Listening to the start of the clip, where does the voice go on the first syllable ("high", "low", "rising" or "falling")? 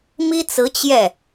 high